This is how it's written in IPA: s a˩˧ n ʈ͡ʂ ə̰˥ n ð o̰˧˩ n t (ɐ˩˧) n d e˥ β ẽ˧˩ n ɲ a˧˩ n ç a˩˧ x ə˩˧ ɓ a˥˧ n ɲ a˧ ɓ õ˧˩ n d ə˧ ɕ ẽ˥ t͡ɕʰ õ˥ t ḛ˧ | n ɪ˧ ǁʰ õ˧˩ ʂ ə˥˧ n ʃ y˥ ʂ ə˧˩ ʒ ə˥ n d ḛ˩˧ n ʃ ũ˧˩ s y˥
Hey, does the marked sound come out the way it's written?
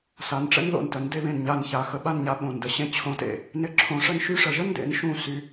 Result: no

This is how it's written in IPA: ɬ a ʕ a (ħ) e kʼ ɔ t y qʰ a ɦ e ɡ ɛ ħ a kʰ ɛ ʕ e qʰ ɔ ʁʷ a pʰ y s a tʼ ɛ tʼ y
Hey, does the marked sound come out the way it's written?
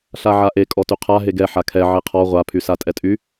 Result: no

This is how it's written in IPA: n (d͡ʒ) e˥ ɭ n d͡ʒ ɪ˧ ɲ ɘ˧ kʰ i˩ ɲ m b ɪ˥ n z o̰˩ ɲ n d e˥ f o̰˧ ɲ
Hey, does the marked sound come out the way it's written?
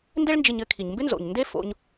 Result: no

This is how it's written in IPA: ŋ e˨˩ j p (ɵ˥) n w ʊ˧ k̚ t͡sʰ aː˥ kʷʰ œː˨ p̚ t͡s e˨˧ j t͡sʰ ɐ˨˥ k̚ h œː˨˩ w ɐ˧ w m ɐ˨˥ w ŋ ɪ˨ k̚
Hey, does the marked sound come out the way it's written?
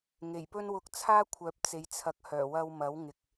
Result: yes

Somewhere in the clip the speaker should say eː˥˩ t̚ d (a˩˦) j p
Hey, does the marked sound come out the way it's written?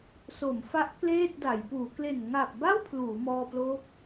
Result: yes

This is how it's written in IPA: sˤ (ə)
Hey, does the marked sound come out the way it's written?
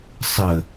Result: yes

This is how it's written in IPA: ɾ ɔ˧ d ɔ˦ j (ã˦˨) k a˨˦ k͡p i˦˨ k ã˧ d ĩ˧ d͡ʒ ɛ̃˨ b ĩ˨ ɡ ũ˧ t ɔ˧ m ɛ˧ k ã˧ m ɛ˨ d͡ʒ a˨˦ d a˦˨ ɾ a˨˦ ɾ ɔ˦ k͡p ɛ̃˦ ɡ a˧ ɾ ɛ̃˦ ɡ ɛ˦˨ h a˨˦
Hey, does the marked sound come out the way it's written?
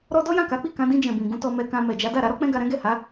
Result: yes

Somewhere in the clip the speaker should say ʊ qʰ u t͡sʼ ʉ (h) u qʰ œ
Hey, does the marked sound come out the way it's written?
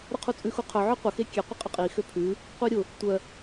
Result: no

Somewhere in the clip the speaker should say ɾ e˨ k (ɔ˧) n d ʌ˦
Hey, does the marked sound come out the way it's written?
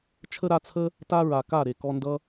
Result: yes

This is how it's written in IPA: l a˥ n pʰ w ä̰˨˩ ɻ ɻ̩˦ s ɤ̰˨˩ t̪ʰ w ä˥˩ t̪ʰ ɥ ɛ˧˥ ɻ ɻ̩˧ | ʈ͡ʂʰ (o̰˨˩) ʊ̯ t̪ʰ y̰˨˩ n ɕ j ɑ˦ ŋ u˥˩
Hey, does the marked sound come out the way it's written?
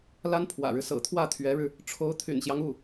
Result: no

